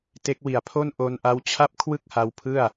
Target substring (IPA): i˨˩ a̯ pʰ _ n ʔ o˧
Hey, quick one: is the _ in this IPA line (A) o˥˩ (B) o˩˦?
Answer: A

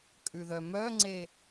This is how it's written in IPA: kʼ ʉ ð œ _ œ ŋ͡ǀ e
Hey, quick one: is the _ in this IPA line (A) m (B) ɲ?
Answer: A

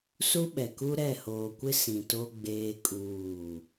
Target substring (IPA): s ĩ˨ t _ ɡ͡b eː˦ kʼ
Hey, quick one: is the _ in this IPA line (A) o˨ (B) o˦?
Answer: B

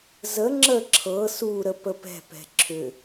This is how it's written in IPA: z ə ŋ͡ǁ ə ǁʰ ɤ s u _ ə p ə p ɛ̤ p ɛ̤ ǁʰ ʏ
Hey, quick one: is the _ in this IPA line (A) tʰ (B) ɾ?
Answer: B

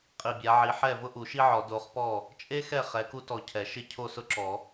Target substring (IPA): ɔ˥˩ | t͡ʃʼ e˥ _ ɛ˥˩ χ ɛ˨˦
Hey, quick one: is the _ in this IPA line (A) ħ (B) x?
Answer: B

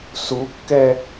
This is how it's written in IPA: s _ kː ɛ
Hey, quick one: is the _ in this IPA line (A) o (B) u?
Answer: B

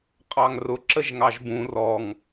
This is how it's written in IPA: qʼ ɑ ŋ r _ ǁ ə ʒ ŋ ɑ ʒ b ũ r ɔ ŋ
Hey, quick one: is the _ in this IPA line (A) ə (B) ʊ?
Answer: B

